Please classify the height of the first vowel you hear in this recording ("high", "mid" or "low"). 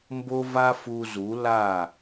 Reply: mid